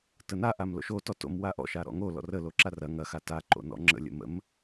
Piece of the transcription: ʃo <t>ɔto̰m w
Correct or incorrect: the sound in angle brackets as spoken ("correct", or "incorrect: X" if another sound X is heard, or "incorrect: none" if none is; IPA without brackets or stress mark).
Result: correct